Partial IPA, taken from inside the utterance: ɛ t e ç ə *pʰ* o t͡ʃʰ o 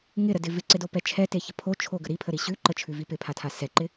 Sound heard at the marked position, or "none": pʰ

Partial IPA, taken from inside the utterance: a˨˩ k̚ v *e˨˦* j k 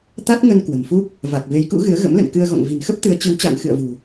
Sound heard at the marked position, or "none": e˨˦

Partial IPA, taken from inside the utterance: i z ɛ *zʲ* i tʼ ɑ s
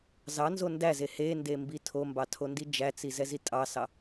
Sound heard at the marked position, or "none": z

